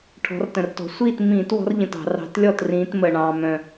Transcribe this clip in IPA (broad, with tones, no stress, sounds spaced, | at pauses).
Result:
ʈʰ ɔ̤˨˦ r t ə̃˨˩ r t ɔ̤˨˩ sʷ iː˥˩ t m ĩː˧˩˧ t w ɔ̤˨˦ r ʎ ə̃˨˩ t ɑ̤˧˩˧ r ɑ̤˨˦ t lʲ ɔ˥˩ t r ĩː˨˦ t m ə˨˩ ɳ ɑ̃ː˨˩ m œ̃˨˩